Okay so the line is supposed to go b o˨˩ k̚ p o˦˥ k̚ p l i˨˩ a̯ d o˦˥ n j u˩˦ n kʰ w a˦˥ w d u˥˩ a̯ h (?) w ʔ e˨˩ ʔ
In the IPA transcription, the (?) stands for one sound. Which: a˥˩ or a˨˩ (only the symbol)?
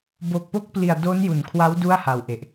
a˨˩